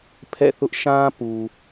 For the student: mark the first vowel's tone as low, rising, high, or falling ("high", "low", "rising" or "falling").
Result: falling